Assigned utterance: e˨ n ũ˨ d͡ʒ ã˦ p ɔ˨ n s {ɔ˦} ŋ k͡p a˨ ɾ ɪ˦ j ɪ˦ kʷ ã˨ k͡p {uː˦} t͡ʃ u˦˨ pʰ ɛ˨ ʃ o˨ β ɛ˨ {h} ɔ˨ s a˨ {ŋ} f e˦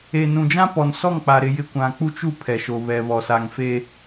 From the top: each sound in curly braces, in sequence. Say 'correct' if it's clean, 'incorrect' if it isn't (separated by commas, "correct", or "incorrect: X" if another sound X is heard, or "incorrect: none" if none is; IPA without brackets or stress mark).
incorrect: ɔ˦˨, incorrect: u˦, incorrect: β, correct